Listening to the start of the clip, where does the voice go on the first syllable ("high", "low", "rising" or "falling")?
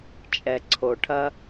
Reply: low